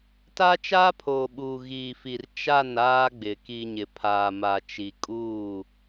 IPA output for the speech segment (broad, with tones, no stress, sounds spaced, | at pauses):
t a˦ t͡ʃ aː˦ pʰ oː˨ ɓ uː˨ ɣ iː˨ f i˨ r t͡ʃ a˦˨ n aː˦ ɡ͡b ɪ˨ k i˨ ɲ ɪ˨ pʰ aː˨ m a˨ t͡ʃ i˨ kʼ uː˦˨